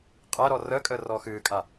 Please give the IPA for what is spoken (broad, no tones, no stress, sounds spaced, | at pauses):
qʼ æ ɾ ɔ r əː kʼ əː r ɔː x ɨː kʼ a